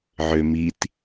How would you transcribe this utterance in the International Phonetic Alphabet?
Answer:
ʕø mit

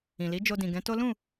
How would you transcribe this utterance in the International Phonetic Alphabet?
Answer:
ĩ˨li˨˦ d͡ʒo˧dĩ˨ ɡɛ̃˨˦to˦ lũ˦˨

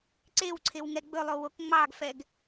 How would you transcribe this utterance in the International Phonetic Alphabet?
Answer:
ǀewǀʰew ŋɛɡ͡bɵlˠo wokŋ͡mɑɡfɛɡ

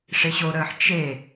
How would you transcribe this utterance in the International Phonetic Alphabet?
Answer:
ʂeɕoɾəːħ t͡ʃe

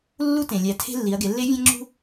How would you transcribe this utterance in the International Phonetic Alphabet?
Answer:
lːu˧˥tẽ˩ lʲæ˩˧tʰe̤˧ lːi˩˧ɐ̯ɡe˩˧lːe˧˥ vʲæ̃˧ŋ͡ǁṳ˧

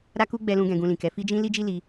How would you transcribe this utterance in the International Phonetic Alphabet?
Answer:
ɾa˦ku˦ɡ͡bɛ˧lũ˧ ɡɛ̃˧ɡũ˧ lĩ˨kɛ˨˦ fi˦d͡ʒĩ˦ li˦d͡ʒi˦li˧

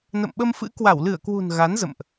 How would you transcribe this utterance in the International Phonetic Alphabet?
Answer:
nə̰˧˨mɓə˧mfɨ̰˧˥ kwa˧˩wlɨ˧˩ə̯kwṳ˨˩n ɣa˨˦nzə̰˧˨mʔ

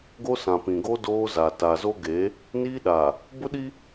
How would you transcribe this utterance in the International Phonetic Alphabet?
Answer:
ɡo˦sã˨pĩ˨ɡo˦ doː˦za˨ ta˨zo˦ɡe˨˦ | niː˦ɗa˨ | bʊ˦ɗi˦

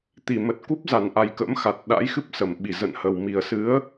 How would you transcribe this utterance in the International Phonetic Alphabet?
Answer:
t̪i˧˩mə˨˩t̚ ku˦˥p̚za˧˩nʔa˨˩j kə̰˧˥mxa˨˩t̚ ɗa̰˧˥jxɨ˦˥p̚ sə˧˩mɓi˧˩ zə̰˧˨nhə˨˩w mi˨˩ə̯sɨ˨˦ə̯

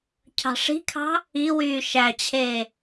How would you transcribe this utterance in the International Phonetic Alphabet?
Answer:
cʰɑ̤ʂi̤kʰɑ̤ | iwyː ʃæt͡ɕʰeː

